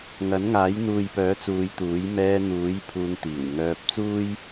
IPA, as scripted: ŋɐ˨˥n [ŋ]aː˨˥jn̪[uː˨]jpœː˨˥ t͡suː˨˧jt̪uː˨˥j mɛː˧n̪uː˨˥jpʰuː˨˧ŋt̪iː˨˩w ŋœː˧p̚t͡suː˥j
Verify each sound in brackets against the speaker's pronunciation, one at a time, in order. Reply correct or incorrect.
correct, correct

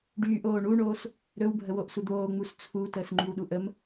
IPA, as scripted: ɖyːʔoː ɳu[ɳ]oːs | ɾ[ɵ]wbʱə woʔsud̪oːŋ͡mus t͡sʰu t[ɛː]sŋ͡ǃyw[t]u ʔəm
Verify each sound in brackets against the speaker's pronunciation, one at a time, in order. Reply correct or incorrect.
correct, correct, incorrect: əː, incorrect: ɗ

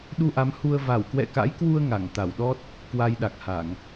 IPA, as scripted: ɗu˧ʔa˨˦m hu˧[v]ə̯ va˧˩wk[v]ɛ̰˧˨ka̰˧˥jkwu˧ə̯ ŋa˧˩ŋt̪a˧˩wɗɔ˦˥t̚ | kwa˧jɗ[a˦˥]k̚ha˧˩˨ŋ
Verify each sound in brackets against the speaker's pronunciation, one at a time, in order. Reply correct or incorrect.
incorrect: none, incorrect: w, incorrect: a˨˩

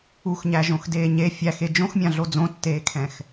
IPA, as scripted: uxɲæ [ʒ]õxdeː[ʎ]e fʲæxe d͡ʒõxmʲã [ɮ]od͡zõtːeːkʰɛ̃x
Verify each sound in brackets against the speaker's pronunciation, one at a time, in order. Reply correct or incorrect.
correct, incorrect: ɲ, correct

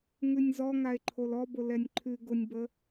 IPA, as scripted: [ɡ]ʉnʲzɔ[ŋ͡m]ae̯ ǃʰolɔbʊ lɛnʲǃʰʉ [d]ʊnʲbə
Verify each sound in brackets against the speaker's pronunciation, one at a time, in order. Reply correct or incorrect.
incorrect: ŋ, incorrect: ŋ, incorrect: ɡ

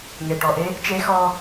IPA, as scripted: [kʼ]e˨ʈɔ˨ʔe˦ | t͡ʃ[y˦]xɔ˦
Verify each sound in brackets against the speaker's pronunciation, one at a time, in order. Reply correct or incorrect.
incorrect: ŋ, incorrect: e˦

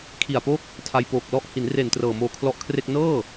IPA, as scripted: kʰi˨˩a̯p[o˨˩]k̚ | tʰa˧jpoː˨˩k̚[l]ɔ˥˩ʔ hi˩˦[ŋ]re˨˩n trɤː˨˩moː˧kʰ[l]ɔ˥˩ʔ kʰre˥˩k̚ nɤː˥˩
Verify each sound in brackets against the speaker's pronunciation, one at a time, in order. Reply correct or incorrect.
incorrect: o˥˩, correct, incorrect: n, correct

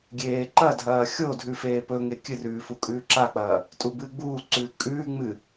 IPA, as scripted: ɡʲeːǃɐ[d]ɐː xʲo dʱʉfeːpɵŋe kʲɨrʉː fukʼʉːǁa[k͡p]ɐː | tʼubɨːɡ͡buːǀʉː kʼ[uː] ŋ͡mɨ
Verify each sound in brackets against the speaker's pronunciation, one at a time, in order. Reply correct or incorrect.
incorrect: dʱ, correct, incorrect: ʉː

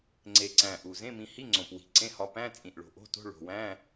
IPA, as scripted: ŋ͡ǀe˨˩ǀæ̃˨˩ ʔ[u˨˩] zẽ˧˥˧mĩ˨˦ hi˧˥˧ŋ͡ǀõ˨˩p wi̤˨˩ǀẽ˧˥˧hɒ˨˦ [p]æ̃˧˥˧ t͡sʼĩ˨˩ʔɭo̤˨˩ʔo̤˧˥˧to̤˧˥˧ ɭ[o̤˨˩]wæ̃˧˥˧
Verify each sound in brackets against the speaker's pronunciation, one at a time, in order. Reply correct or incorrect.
correct, correct, correct

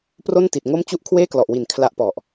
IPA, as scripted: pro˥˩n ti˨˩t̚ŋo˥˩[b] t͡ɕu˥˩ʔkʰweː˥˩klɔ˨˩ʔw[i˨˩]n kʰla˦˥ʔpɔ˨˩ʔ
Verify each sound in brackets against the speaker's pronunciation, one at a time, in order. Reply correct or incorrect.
incorrect: m, correct

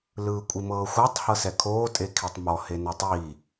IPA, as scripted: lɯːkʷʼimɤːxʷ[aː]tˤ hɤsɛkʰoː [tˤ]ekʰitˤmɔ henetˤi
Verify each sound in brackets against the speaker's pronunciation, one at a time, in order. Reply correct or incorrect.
incorrect: a, incorrect: tʼ

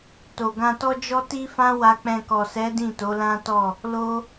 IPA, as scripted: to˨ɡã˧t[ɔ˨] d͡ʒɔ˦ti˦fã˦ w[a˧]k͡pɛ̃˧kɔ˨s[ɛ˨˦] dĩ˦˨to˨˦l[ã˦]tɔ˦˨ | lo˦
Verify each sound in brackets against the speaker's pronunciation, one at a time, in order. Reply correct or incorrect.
incorrect: ɔ˦, correct, correct, correct

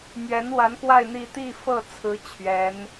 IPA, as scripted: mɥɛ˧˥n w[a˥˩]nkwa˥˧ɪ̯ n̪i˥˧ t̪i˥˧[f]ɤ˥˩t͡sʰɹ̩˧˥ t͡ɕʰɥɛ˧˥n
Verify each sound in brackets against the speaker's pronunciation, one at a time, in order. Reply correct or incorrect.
incorrect: a˧˥, correct

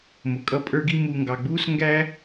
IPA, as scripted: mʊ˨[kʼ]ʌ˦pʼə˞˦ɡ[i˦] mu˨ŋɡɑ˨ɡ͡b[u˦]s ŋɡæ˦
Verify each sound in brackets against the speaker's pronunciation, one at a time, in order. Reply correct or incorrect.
correct, correct, incorrect: uː˦

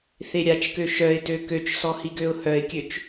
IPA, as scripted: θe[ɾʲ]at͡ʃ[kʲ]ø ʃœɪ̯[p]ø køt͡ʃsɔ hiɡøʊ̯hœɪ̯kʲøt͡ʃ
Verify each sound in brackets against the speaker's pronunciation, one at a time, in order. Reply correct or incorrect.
correct, incorrect: k, incorrect: t

